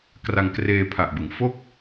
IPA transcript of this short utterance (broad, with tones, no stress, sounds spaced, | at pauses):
k r a˧ ŋ k r eː˧ pʰ a˨˩ ʔ b ɯ˩˦ ŋ f o˥˩ k̚